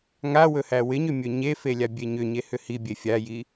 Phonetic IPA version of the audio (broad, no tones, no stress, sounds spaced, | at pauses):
ŋ a w ɵ h æ w ɪ ɲ ʏ mʲ ɵ ɲ e f e lʲ a bʲ e ɲ ʏ ɲ e h ʏ h i bʲ e fʲ a j i